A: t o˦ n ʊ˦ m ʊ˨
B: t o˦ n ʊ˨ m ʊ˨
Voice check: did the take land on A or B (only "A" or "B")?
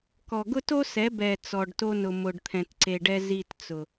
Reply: B